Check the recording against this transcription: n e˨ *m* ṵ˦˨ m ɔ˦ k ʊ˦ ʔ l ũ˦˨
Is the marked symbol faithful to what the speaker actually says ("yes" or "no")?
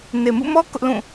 yes